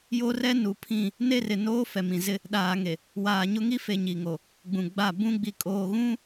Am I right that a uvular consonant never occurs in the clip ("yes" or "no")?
yes